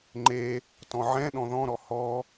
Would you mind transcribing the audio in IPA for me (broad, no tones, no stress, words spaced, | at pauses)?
ŋ͡ǃe | tɔ̃ʕɛ̃ɗɔ̃ ðɔ̃ɾɔ hɔ